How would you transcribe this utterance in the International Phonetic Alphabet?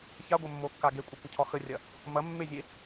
ç a ɡʷ ɐ mː o kː a ɡ e kʷʼ a kʷ ə cʰ ɒ x ə rʲ ɐ | m ɐ mː e zʲ e

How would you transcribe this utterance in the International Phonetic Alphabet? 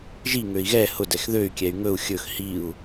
ʒ i ŋ ø i̯ ɣ ɛ h ʊ d ɛ x ð ø y̯ kʲ ɛ y̯ ŋ ɵ u̯ xʲ ɵ x h i u̯

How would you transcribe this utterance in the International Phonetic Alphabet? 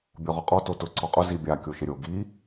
bʲ ɔ ʁ ɔ qʼ ɔ t o t ʊ ǀ ɔ qʼ ʊ z i bʲ a kʲ o ʃ ɪ ɾʲ o ɡ i

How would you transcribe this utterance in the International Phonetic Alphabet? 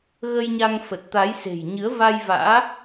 ɣ ə˧ j ɲ a˧ ŋ f ə˨˩ t̚ t̪ a˨˦ j s e̤˨˩ j ɲ ɨ˨˦ ə̯ v a˧ j v a̰ː˧˥

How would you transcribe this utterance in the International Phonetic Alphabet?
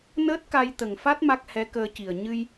n əː˦˥ t̚ k a˧ j t̪ ə˨˩ ŋ f a˦˥ t̚ m a˦˥ k̚ h ɛ˧˥ k əː˧ c i˨˩ ə̯ ɲ ɨ˧ j

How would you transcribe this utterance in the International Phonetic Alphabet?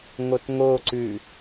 ŋ o t ŋ o ǀ ʉ

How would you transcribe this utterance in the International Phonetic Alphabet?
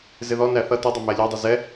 z ɪ ð ɔ n æ θ ʌ t ʊ dˤ ʌ m æ lʲ ɑ dˤ ʌ z ɛ

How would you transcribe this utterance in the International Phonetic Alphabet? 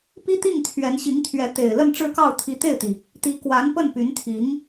p i˥ t̪ i˥˩ ŋ t̪ʰ ɥ ɛ˧˥ n ɕ i˧˥ ŋ t̪ʰ ɥ ɛ˧˥ t̪ e˨˩ ɪ̯ l ə˥˧ n ʈ͡ʂ ɻ̩˥˧ k ɑ˥˩ ʊ̯ t̪ʰ i˧˥ t̪ e˥˩ ɪ̯ t̪ i˩ | t̪ i˧˥ k w a˧˥ n p ə˥˩ n p y˧˥ n t̪ʰ i˧˥ ŋ

